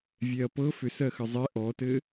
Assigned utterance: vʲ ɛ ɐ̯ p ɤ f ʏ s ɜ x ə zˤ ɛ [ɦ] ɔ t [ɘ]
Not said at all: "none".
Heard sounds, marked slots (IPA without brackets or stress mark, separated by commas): ʔ, ɘ